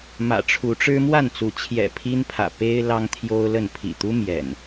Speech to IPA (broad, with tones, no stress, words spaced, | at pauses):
mä̰˨˩ʈ͡ʂʰu˨˦ʈ͡ʂɻ̩˦ mwa˥˨nt͡su˨˦ t͡ɕʰjɛ̰˨˩ pʰi˦npʰä̰˨˩ pe˦ɪ̯ lɑ˦ŋt̪ʰjo˦ʊ̯lə˥˨n pʰḭ˨˩t̪u˦ mjɛ̰˨˩n